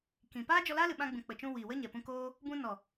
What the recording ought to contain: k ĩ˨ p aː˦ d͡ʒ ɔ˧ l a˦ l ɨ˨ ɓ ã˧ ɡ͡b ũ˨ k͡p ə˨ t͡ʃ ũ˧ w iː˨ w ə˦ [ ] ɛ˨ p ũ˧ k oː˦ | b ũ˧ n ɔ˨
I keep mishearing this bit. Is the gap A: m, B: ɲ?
B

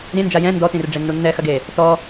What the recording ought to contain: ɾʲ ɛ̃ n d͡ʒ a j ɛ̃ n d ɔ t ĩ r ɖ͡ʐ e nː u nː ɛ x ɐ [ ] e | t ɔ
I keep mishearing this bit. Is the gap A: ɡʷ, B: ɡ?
B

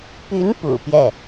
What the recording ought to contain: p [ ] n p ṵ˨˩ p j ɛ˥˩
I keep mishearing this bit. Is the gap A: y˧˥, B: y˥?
A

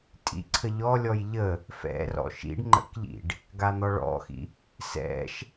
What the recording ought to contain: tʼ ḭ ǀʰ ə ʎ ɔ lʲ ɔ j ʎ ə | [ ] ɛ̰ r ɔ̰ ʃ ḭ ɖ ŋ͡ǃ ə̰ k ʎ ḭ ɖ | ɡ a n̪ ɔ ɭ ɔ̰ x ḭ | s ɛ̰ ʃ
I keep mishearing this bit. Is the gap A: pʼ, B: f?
B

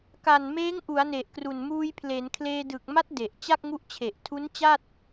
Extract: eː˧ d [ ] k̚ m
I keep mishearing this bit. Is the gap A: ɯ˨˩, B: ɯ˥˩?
A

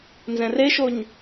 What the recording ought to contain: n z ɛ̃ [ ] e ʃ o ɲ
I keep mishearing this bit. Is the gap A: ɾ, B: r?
B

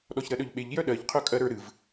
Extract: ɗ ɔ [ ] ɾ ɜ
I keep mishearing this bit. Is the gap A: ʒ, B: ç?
B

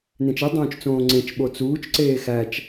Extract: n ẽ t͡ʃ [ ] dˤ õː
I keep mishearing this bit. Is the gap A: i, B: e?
A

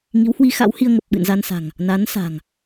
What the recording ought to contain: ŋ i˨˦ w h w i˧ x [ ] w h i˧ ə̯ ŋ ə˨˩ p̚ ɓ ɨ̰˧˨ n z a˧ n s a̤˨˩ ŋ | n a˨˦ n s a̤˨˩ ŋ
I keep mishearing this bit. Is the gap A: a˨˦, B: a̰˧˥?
B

